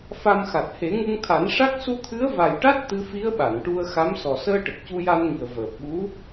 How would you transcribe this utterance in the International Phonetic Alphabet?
fa˧mxa˨˩t̚ he˨˩˦ŋu˧ŋt̪ʰa˨˩˦n ʂa˦˥k̚ su˧t̪ʰɨ˧˥ə̯va˨˩jʈa˦˥t̚ t̪ɨ˧˥fi˧˥ə̯ ɓa˨˩˨nʈu˧ə̯xa˧˥m sɔ˨˩səː˧ʈə˨˩k̚ cu˧ja˧nŋi˨˩ə̯ vəː˨˩p̚ɓu˧˥

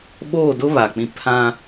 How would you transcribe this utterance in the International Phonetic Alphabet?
ɓoː˦˨dʊ˦ βa˨k͡pĩ˦ pʰã˦

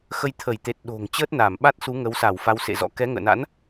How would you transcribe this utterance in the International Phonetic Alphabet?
xə˧jt̪ʰə˧˩jt̪e˨˩t̚ ɗo̤˨˩ŋ t͡ɕəː˦˥t̚naː˧˩mɓa˦˥t̚ su˨˦ ŋə˨˦wsa˧˩w fa˧wsḛ˧˨zɔ̰˧˥ kɛ˨˦ ŋə̰ː˧˨na̰˧˥n

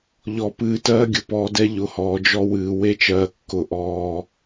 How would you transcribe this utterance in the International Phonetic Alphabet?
ʎɔ˨pɨː˨ tɜː˦ɡʲʊ˨pɔː˨dɛ˦ ʎʊ˨hɔː˨ d͡ʒɔ˦wɨː˨ we˦t͡ʃɜː˨kːʊ˨ ʔɔː˨

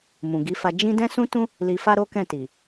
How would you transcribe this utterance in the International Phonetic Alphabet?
mũ˨ɡi˨˦fa˧ d͡ʒĩ˦ dɛ̃˦sũ˦tũ˦ | li˧fa˦ ɾo˦kɛ̃˦˨ti˨

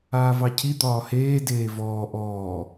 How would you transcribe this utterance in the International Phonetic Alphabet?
aːvɑcʰi d̪ɒːheː deːvɔː ʔɔː

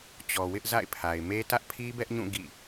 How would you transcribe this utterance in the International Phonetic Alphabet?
t͡ɕɔ˨wɪ˦ʔ za̰˦˨ɪ̯pʰa˨ɪ̯me˦ tä˦ʔpʰi˦bɛ˦ʔɲũ˦˨ ɡḭ˦˨

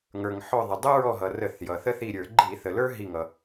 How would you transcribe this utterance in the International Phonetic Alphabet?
ŋə˞˩ŋ ħɔ˧˩ðˤə˩ dˤʊ˦ɹɔ˧˩ɦʌ˩ rə˧˩˧θjʌ˩θə˦ θi˧˩ɾʲə˞˧˩˧ ɡ͡ǃi˧˩˧θə˩lə˞˦ ɦi˧˩ŋʌ˩

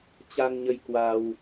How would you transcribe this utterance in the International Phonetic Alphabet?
t͡ɕa˧ŋɲə˧j kwa˧w

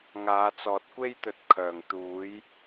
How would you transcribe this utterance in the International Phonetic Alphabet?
ŋaː˨˧t͡sɔː˨˥t̚kʷe˥jt̪ɵ˧t̚ kʰœː˨˩ŋt̪uː˨˥j

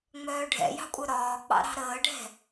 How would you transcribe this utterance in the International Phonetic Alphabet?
ŋ͡mœːɖʱɛ̰jɑ̤kʷʼœ ɾɒːk͡pɑ̰ ɾɑ̤ɾəːɖʱɛ̤

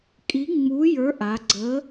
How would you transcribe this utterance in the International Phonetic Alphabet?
kʼi˨˥ŋ͡mu˨˥jə˞˨˥ ʔa˩˧ ɡ͡ǀə˨˥

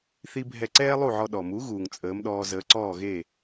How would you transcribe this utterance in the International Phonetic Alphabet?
θi˥bʱɛ˥˩ ǀɛː˥lˠu˥˩ʕɔ˧ ɗɔ˩mu˩˥ ɣuː˩ŋt͡sʼəː˩˥mɗɔː˧zəː˩˥ ǀɔː˥˩ɣe˥˩

